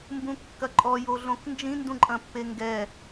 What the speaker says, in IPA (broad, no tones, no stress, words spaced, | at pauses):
mbũkːɐǃʼɔ joɮõknd͡ʒĩ ndũǃʼɐ̃pːeŋɡɛ